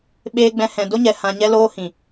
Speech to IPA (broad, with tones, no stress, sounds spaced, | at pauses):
ɓ eː˧ ɡ͡b ɛ̃˧ h ɛ̃˨ d o˦ ɲ ɛ˨ h ã˧ ɲ ɛ˦ l oː˦ h ĩ˨